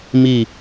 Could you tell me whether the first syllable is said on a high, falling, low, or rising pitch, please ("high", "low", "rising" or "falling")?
falling